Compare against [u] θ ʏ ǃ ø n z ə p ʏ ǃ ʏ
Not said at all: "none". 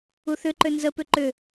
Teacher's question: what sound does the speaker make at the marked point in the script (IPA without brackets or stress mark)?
u